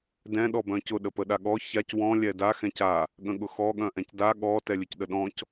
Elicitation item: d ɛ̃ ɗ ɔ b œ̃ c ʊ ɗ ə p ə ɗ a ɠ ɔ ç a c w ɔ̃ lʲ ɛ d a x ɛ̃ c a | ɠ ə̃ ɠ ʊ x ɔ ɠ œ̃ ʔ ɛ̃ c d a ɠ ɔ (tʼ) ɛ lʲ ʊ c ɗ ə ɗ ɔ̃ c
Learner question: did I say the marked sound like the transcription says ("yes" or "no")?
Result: no